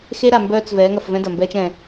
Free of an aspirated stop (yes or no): yes